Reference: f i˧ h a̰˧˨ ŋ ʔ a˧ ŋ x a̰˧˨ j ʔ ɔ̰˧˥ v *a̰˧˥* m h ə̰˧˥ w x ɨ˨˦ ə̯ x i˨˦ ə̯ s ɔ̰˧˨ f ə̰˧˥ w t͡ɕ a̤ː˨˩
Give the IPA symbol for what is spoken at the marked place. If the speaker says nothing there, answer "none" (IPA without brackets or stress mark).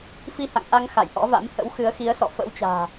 a̰˧˥